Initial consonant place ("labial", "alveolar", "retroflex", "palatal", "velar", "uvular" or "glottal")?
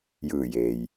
palatal